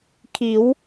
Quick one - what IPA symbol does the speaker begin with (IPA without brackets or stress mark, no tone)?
kʰ